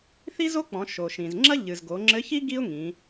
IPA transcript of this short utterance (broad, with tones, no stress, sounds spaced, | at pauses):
θ i˥ z o˥ k͡p ɔ̃˩˧ ʃ o˩ ʃ ĩ˩ z ŋ͡ǁ ɐ˥ ʎ ɨ˩ z ɡ o˩˧ ŋ͡ǁ ɘ˧˥ ç i˥ ɡ i˥ ʊ̯ ŋ ĩ˩˧